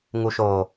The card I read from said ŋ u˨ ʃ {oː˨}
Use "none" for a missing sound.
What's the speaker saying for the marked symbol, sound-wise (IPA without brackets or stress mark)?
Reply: oː˨